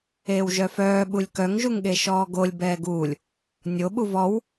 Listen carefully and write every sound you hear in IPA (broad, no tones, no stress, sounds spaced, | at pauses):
eː w ʒ œ f œː ɓ u lʲ k œ ŋ ʒ u ŋ ɠ e ʃ ɔː ɡ o lʲ b ɛː ɡ uː lʲ | nʲ o ɓ u v ɔ w